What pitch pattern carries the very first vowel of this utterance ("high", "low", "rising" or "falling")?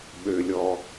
low